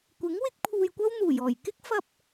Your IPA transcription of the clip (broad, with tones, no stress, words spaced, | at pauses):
kʷɪ˨˥ŋ wɪ˥k̚pʰuː˧jkʷɐ˥w n̪uː˨˩jɔː˨˩jkɪ˥k̚ fɐ˧p̚